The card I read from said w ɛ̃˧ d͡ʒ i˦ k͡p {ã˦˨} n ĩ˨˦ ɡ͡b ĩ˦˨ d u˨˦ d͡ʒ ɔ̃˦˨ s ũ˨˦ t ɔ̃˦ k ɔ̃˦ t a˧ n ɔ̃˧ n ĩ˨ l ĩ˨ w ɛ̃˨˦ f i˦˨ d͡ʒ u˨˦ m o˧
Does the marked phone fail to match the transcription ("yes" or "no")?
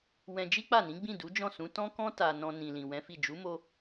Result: yes